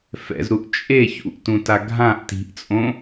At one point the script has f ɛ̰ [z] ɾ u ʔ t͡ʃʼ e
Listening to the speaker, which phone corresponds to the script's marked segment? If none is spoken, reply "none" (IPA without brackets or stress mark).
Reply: z